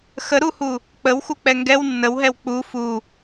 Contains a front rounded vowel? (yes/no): no